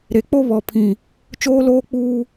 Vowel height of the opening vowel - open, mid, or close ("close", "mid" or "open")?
mid